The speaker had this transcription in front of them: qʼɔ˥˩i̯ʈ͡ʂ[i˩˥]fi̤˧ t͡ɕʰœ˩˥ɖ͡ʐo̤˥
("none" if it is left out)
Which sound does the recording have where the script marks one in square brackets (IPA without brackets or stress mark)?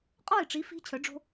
i˩˥